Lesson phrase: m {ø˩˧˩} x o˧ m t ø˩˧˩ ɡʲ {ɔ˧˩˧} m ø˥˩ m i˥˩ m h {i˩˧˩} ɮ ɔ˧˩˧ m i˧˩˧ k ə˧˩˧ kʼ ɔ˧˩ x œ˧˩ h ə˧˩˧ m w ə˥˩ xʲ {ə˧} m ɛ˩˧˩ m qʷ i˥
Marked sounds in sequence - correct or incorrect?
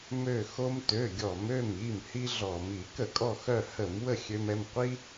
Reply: incorrect: ø˧˩, correct, incorrect: i˥, incorrect: ø˧

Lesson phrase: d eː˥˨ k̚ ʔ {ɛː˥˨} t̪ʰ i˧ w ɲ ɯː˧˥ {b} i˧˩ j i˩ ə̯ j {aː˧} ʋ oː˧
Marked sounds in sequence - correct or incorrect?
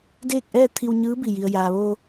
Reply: correct, correct, incorrect: aː˩

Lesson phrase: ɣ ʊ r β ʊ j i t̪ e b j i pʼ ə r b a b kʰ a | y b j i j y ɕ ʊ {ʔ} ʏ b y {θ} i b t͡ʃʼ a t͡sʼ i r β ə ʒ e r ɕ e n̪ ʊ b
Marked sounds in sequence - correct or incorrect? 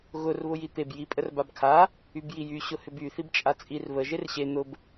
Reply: incorrect: h, correct

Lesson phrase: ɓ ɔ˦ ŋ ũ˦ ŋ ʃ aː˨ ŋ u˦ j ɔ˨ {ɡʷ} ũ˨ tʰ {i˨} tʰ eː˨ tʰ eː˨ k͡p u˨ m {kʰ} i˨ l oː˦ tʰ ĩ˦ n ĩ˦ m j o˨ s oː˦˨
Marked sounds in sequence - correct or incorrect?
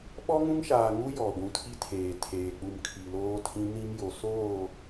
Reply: correct, incorrect: i˦, correct

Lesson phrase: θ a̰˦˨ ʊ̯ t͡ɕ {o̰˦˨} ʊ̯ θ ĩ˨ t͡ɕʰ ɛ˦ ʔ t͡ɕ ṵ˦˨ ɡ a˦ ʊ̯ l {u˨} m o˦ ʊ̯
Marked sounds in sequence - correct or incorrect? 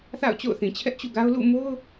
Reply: correct, incorrect: ṵ˦˨

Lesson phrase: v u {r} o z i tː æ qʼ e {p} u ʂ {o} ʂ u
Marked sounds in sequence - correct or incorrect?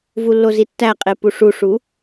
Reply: incorrect: lː, correct, incorrect: u

